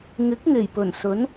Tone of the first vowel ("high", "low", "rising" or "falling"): rising